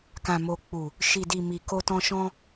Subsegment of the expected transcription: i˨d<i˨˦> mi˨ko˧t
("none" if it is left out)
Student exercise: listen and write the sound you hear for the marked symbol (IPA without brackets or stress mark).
i˨